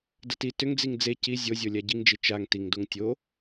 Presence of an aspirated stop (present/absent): absent